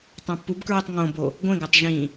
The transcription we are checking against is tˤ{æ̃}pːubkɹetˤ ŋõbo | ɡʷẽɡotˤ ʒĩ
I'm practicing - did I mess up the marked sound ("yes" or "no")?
no